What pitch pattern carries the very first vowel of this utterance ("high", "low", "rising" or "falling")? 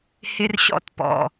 high